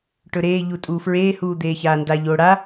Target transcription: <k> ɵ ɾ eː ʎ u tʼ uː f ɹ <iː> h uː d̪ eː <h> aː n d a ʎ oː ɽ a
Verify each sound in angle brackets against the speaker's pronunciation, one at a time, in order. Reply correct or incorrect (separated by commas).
incorrect, incorrect, incorrect